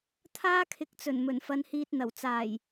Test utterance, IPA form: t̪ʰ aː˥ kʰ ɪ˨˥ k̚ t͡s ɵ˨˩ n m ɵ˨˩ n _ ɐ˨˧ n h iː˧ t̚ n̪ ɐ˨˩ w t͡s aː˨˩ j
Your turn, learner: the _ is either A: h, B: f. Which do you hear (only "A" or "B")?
B